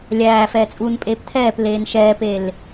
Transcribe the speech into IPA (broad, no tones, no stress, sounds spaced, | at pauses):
lʲ æː f ɛː t͡sʼ uː n pʼ eː p tʰ ɛː p l eː n ʃ ɛː p e l